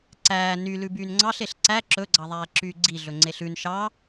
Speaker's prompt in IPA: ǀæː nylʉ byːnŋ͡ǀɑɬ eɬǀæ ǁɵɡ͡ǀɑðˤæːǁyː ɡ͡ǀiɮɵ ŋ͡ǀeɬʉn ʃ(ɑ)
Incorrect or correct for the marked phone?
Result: correct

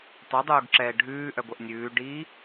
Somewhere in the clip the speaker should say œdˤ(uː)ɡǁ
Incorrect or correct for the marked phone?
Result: correct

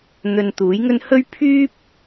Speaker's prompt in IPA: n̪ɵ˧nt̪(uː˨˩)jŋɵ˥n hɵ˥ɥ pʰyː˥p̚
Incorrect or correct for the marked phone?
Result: incorrect: uː˨˥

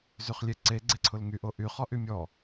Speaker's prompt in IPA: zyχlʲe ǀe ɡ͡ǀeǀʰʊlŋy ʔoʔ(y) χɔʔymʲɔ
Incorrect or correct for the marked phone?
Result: correct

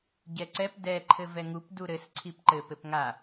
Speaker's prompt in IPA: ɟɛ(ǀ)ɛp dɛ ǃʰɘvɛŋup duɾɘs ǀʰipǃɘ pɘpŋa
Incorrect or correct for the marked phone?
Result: correct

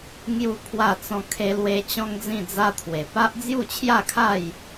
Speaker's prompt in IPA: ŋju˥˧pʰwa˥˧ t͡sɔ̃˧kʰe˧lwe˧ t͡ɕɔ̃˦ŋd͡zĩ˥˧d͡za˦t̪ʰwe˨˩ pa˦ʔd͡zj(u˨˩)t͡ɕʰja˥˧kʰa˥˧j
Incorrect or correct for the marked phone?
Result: incorrect: u˥˧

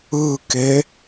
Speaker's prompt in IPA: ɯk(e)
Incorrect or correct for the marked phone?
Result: correct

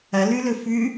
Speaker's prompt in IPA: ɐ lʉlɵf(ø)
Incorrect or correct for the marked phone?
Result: incorrect: ʉ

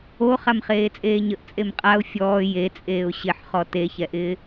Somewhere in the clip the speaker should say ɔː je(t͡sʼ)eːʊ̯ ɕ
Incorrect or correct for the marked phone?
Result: correct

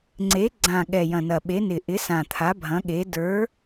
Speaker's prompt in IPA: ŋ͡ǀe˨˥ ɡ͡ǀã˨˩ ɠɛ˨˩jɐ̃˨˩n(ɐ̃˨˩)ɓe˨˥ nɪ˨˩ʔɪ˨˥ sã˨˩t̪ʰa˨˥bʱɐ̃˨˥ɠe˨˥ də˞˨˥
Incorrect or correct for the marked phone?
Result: incorrect: ɐ˨˩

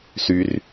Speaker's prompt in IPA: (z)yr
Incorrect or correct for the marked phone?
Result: incorrect: s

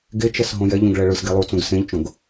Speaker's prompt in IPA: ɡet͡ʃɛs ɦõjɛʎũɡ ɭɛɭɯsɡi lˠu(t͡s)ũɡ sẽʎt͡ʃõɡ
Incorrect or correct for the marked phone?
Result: correct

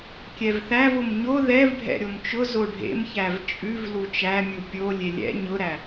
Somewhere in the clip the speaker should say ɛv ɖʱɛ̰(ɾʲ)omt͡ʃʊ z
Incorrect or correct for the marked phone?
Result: correct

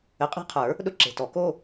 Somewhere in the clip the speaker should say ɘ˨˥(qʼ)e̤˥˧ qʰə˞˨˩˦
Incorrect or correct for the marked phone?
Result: correct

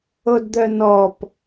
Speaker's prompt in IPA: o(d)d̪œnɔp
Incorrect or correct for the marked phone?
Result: correct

